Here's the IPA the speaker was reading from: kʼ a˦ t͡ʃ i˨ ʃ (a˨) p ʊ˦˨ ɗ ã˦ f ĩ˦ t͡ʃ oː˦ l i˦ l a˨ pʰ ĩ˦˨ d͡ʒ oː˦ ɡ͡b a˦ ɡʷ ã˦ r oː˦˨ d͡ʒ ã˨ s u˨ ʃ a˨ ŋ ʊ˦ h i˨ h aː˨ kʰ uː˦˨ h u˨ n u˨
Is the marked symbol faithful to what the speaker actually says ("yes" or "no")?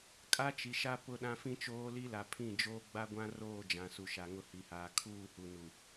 no